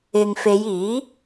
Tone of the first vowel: low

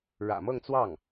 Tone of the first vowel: low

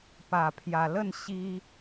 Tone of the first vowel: low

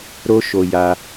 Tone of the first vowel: high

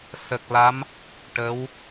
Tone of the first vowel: low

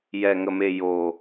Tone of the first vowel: low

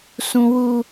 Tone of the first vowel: high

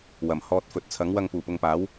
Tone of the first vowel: low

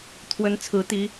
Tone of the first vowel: rising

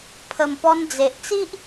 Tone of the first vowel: low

